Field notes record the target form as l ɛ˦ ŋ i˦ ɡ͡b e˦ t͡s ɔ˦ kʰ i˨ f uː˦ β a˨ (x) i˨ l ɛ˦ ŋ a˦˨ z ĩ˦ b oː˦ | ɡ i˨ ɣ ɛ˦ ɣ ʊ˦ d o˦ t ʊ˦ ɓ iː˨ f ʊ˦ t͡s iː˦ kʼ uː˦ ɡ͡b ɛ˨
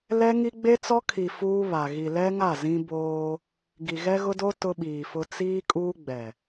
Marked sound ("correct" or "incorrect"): incorrect